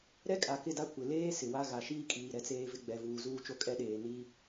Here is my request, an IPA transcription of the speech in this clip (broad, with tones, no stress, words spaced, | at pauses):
ɾɛ˦kʼa˨kɪ˦˨da˦ kʷɪ˨leː˦ sɪ˨wa˦ ɣa˨ʃiː˦kʼiː˨ ɾɛ˦t͡seː˦vɪ˦ ɡ͡bɛ˨vuː˨ zuː˦t͡ʃo˦kʼɛ˦ɗeː˨ niː˦